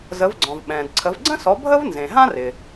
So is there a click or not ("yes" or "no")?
yes